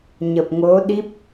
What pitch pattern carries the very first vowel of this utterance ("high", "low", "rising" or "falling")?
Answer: low